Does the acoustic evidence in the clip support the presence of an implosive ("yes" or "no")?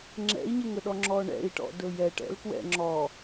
yes